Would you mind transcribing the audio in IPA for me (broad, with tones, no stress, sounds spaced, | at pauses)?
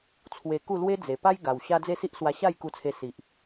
t͡sʰ w e˧ k u˥˧ l w e˦ d͡z e˨˩ p a˦ j ɡ a˨˩ w ɕ a˦ d͡z e˥˧ s i˦ ʔ s w a˧ ɕ a˥˧ j k u˧ t͡sʰ e˧ s i˨ ʔ